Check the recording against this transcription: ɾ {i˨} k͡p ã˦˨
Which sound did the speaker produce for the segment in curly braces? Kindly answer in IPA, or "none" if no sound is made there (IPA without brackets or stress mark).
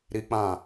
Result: i˦